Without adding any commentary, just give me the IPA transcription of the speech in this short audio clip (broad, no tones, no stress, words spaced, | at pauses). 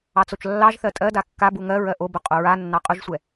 ɑt͡sot͡ʃlːɑʒθɜ tʼɜda kːa buŋɜɹɜ ʔobʊ qʼoɹanːɑ qʼʊʒsʷɛ